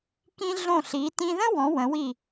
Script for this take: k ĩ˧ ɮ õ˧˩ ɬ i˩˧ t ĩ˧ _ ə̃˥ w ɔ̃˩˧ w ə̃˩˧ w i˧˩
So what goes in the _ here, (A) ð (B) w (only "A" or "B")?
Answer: A